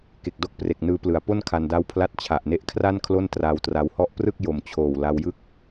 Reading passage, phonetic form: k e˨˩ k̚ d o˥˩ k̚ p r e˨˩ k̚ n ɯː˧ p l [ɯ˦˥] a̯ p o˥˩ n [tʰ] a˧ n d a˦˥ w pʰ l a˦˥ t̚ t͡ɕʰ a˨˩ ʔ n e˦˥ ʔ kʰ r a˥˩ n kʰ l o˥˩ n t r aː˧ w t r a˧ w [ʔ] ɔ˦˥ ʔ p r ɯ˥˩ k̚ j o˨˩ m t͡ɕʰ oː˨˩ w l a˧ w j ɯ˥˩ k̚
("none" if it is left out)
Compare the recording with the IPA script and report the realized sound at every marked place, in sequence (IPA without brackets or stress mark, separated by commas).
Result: ɯ˩˦, kʰ, h